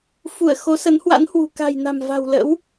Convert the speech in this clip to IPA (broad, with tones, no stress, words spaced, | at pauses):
fu˧˩ə̯ xo˨˦sə˨˦nhwa̰˧˥nhwṳ˨˩ ka̤˨˩jna̤˨˩m va̤˨˩wlə̰˧˥w